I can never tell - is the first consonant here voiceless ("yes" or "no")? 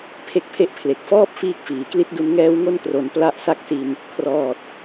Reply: yes